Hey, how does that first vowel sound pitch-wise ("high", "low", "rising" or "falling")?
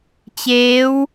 rising